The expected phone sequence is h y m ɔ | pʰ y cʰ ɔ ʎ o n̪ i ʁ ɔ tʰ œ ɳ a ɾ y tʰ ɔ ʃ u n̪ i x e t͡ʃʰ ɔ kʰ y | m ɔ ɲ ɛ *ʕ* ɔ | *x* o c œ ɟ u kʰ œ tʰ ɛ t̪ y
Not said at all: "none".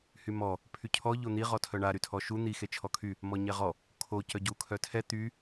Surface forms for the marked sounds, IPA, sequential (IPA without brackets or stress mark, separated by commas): ʁ, kʰ